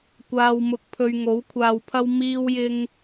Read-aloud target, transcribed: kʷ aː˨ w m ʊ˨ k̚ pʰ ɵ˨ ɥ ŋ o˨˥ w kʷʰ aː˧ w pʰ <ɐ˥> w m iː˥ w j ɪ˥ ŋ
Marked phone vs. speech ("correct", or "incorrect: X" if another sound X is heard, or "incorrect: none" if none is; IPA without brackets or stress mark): correct